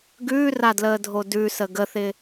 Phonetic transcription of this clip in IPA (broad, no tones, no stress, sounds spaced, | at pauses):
ɡ ʉː r a d l əː dʱ o d ʉ s ə ɡ ə θ ɪ